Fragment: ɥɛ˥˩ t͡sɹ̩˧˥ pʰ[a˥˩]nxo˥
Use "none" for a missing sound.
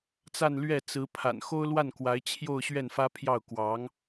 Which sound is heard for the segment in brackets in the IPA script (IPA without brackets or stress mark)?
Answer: a̰˨˩